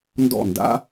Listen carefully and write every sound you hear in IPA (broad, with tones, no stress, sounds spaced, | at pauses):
n d ɔ̰˦˨ n d a̰˦